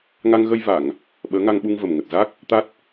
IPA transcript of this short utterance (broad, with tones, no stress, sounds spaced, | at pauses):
ŋ a˧ ŋ ɣ ə˧ j v a˧˩˨ ŋ | ɓ əː˨˦ ŋ a˧ ŋ ɓ u˧ ŋ v ə˨˩ m ŋ ə˨˩ t̚ z a˦˥ k̚ | t̪ a˦˥ t̚